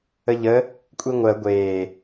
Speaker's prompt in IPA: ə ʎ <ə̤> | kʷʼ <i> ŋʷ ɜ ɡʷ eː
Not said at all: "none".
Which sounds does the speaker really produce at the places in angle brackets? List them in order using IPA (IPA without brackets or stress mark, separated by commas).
ə, i